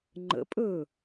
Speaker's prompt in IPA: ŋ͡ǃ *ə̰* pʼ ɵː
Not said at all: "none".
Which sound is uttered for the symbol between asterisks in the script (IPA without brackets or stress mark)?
ə̰